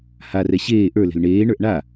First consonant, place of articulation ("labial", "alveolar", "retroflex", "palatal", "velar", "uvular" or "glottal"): glottal